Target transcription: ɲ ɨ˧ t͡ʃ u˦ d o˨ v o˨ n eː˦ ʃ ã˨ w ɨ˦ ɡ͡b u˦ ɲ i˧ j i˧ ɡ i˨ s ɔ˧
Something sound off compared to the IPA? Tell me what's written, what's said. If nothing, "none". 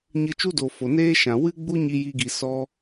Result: v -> f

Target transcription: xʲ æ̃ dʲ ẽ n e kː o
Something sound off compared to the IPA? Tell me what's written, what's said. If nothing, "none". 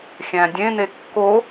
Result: none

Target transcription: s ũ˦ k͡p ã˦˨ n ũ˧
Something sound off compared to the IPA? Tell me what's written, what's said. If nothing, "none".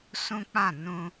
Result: none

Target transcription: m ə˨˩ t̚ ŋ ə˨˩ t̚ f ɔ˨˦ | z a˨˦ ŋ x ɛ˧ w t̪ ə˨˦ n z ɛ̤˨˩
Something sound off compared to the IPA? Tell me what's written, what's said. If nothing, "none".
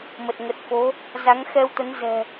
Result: ɔ˨˦ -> o˨˦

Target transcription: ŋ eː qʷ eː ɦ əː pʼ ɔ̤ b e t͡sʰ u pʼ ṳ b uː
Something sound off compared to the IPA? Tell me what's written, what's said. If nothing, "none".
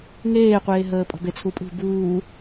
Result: none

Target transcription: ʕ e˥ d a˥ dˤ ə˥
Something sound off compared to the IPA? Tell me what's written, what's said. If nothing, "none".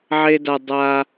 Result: ə˥ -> a˥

